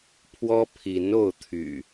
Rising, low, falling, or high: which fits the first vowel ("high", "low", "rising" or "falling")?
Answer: high